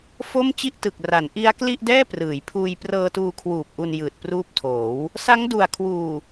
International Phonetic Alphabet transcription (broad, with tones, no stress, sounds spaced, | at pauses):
f o˥˩ m t͡ɕ i˥˩ ʔ t ɯ˨˩ k̚ r a˩˦ n ʔ i˦˥ a̯ k l i˥˩ ʔ d ɛː˥˩ p r ɯː˩˦ j pʰ uː˧ j p r ɤː˧ t uː˧ kʰ w uː˨˩ p̚ ʔ u˧ n j ɯː˨˩ t̚ p r uː˦˥ p̚ tʰ oː˩˦ w | s a˦˥ ŋ d u˨˩ a̯ kʰ w uː˨˩